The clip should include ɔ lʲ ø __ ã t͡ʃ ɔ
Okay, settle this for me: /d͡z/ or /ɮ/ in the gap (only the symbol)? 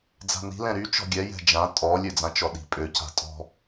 d͡z